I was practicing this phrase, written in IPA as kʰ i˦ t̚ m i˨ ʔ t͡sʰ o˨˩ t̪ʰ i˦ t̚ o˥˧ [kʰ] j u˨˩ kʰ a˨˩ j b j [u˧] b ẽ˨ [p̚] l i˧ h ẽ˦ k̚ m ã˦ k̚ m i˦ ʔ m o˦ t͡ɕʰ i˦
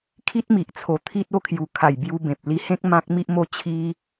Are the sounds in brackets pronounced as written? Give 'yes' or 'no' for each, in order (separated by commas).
yes, yes, yes